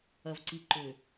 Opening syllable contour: low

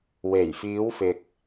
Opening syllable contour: low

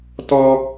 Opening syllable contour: high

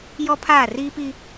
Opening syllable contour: high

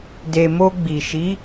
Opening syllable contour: low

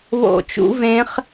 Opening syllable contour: falling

